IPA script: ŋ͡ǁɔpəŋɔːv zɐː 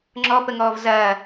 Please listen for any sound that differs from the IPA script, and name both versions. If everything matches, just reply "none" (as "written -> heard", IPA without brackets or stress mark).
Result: none